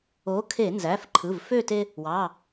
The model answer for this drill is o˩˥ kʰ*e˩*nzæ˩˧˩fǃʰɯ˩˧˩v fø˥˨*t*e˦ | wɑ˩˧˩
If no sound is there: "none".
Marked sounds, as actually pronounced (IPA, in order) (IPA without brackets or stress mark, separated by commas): e˧˩˧, t